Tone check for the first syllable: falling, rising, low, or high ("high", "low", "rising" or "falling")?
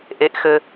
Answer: high